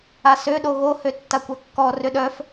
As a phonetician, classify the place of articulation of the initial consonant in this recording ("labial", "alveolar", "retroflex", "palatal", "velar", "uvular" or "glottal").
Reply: alveolar